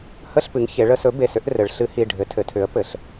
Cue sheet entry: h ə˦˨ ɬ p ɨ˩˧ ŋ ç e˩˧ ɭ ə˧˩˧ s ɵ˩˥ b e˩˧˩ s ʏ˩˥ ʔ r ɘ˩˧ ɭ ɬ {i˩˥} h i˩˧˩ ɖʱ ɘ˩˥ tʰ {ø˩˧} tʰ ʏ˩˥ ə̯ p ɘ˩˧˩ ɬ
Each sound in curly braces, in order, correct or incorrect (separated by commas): incorrect, incorrect